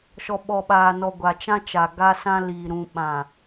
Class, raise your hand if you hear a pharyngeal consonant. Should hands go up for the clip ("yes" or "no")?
no